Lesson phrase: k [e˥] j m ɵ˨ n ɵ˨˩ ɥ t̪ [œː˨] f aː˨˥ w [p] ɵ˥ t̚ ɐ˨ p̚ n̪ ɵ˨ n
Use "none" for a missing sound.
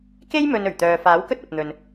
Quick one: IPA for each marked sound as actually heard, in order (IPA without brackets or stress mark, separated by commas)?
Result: e˥, œː˨, k